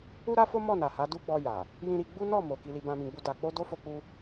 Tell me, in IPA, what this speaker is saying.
u˦ ɾ a˦ f o˦ m ɔ˦˨ n a˨ h a˨˦ d u˦ ɡ͡b ɔ˧ j a˨ | j ĩ˧ ɾ i˧ ɡ͡b u˦ n ɔ˦˨ m o˨ k i˧ l i˧ b ã˧ m ĩ˧ ɡ͡b u˧ d a˨ k͡p o˧ d o˦ f o˦ k͡p u˦

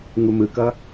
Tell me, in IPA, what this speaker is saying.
ŋ u m ɯ k ʌ

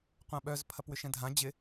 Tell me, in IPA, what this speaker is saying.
qʷ ã ɓ œ z pʰ ɐ p w ʏ ʃ ɛ̃ dʱ ã d͡ʑ ɪ

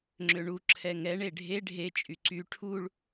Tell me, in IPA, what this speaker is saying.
ŋ͡ǁ ø ɳ u ǁʰ ɛ ŋ ɛ ɳ e ɖʱ e ɖʱ e t͡ʃʼ y ǀ y ʈʰ u ɭ

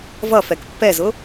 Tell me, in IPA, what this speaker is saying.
v ʌ f ɛ k pː ɛ z ʊ

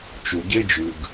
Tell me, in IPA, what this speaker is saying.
t͡ʃ u˩ ɟ e˥ d͡ʒ ʉ˩ ɡ

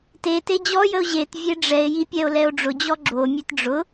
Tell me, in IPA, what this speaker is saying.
t e t e d͡ʑ ɔ j ə o̯ ʑ e t vʲ e ɖ͡ʐ ɛ e̯ j i pʲ ɛ o̯ l ɛ o̯ ɖ͡ʐ ʊ d͡ʑ ɔ ɡ͡ǁ o mʲ e t ɖ͡ʐ ʊ

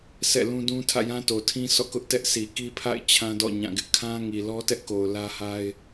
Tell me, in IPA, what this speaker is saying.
s ɛ̰˦˨ l ũ˦ d ũ˦ tʰ ä̰˦˨ j ã˦ t o˨ tʰ ĩ˦ sʰ ɔ̰˦˨ k ʊ˦ ʔ t ɛ˦ ʔ sʰ i˨ k i˦ pʰ a̰˦˨ ɪ̯ t͡ɕʰ ã˦ d ɔ̰˦˨ ɲ ã˦˨ ɡ ɪ˦ ʔ kʰ ã˦ ŋ i˨ l ɔ˦ t ɛ˦ ʔ k o˨ ʊ̯ l ä˦ h a˦ ɪ̯

